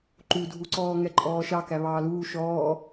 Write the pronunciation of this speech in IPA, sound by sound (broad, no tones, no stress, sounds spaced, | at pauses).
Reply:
ǃ u dʱ u ǀ ɔː ŋ ɛ ǃʼ ɔː ʃ ɑ k æ β ɑː l uː ʃ ɔː